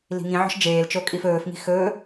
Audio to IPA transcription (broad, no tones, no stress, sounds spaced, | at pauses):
l i̤ ŋ ĩ ʕ ɔ̤ ʃ d͡ʒ eː l t͡ʃ o kʼ i f ɵː f ŋ i̤ x ɵ